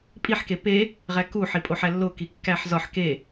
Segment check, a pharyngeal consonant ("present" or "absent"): present